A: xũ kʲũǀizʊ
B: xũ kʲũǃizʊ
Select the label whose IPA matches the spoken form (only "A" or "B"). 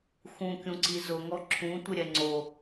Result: A